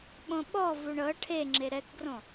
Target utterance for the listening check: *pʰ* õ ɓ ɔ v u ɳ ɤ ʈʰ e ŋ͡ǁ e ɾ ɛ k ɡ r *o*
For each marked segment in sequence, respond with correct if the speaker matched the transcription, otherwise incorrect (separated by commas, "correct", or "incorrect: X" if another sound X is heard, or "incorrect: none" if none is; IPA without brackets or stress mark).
incorrect: ɓ, incorrect: õ